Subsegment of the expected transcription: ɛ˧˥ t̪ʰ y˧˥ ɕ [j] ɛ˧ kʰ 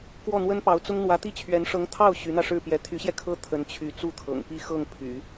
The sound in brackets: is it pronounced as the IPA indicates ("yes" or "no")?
yes